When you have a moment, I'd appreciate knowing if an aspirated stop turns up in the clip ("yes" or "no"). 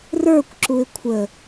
yes